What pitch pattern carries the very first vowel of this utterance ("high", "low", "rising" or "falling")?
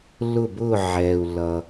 falling